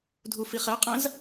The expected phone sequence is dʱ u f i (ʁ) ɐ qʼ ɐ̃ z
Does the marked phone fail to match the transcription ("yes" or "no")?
yes